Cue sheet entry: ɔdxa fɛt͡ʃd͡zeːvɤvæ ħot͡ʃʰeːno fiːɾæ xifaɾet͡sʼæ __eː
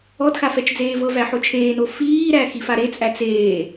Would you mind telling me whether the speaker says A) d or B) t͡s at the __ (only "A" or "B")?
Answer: B